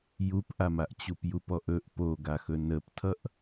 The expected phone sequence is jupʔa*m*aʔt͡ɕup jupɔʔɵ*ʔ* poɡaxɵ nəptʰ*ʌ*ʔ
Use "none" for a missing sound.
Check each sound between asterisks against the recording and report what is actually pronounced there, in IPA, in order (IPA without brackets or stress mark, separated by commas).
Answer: m, ʔ, ʌ